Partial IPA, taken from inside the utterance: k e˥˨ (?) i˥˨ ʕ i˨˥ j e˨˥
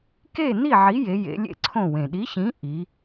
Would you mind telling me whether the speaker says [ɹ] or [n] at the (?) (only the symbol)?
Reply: n